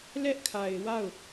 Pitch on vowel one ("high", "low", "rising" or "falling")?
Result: high